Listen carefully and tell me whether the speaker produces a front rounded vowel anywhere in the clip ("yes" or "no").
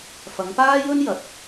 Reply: no